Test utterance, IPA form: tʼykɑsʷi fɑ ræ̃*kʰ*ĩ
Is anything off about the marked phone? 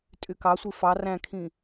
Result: no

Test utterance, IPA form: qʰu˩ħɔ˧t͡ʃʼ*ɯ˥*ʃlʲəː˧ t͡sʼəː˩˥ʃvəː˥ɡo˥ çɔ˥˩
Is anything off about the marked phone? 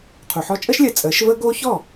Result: yes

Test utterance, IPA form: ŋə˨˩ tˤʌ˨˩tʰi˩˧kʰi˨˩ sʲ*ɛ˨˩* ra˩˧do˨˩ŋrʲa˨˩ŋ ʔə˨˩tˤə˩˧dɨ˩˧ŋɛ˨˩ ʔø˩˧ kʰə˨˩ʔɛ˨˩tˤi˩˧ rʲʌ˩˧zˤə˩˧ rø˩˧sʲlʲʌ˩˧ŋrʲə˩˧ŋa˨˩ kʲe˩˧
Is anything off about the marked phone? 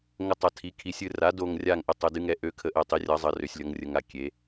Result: yes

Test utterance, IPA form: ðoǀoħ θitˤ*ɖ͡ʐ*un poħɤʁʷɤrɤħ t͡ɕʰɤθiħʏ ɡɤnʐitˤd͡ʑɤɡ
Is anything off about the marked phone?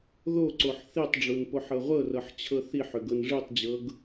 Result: no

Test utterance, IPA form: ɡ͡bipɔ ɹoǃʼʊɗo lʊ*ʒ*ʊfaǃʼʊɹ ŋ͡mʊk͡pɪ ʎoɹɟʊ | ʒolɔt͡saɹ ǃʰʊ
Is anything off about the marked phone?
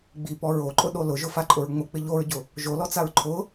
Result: no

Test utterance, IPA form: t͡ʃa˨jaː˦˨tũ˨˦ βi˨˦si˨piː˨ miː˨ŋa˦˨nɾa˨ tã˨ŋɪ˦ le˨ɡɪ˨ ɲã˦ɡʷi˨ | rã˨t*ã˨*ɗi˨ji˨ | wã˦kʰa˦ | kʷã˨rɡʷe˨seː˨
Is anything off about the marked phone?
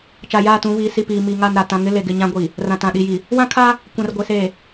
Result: no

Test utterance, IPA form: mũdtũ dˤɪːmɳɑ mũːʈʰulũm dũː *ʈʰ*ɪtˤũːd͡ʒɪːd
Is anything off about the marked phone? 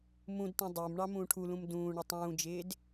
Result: yes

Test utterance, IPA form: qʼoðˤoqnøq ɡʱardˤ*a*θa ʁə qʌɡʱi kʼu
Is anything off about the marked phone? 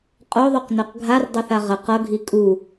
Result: yes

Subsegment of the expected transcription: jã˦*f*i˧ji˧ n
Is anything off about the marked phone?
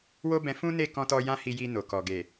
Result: yes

